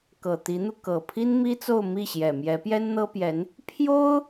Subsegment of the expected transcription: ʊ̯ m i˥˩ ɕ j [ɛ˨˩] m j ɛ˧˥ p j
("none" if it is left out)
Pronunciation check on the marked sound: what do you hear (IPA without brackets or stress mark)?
ɛ˨˩